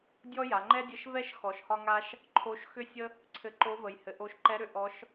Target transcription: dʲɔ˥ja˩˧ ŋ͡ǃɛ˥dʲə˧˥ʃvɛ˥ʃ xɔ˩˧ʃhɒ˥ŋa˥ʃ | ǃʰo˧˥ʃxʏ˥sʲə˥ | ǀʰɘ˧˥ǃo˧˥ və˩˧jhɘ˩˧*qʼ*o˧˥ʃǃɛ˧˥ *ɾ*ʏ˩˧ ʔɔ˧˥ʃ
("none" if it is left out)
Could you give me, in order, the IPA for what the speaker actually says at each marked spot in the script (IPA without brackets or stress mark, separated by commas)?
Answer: ʔ, ɾ